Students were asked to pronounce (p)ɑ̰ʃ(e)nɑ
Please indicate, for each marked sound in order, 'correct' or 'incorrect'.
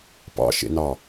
correct, incorrect: ḛ

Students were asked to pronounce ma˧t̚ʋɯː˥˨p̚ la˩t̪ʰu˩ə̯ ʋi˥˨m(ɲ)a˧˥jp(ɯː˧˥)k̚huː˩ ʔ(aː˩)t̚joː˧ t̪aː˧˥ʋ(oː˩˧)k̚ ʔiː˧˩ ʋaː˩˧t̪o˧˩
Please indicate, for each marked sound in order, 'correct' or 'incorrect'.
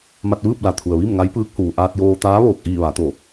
incorrect: ŋ, correct, incorrect: aː˧, incorrect: oː˧˩

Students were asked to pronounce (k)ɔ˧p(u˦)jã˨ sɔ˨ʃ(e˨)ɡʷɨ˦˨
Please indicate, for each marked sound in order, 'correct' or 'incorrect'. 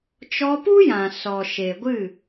incorrect: t͡ʃ, correct, correct

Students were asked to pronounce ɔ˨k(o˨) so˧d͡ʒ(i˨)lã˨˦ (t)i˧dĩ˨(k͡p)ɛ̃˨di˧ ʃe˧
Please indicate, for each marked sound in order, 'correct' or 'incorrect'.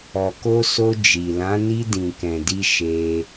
incorrect: o˧, correct, incorrect: n, incorrect: k

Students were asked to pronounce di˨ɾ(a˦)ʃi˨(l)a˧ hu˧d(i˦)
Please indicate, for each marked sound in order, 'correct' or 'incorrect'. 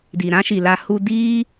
incorrect: ã˦, correct, incorrect: iː˦

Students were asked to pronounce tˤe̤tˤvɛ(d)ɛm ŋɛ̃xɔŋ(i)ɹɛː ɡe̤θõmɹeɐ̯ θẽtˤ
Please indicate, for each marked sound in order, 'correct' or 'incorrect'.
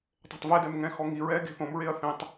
correct, correct

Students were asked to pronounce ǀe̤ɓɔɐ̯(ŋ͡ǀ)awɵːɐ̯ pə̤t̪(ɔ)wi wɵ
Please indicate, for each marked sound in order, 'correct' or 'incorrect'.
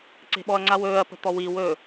correct, correct

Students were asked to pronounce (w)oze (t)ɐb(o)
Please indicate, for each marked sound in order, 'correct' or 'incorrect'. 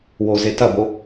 correct, correct, correct

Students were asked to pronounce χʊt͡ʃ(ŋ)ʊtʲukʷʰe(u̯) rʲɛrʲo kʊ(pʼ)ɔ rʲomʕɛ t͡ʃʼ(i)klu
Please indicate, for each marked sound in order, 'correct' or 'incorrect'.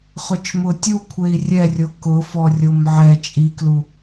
incorrect: m, incorrect: i̯, incorrect: f, correct

